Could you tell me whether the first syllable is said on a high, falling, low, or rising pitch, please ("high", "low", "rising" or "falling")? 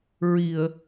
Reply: low